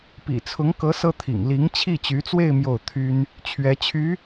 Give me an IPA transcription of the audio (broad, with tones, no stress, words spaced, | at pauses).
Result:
pḭ˨˩ t͡sʰʊ˧˥ŋkɤ˧˥ sɤ˥t̪ʰḭ˨˩ŋ li˧˥ŋt͡ɕʰi˥˩t͡ɕy˧˥t͡swe˥˧ɪ̯ mjo˥˩ʊ̯ t̪ʰy˥n | t͡ɕʰɥɛ˧˥t͡ɕʰy˧˥